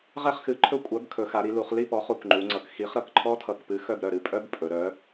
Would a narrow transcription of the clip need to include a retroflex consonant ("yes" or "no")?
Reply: no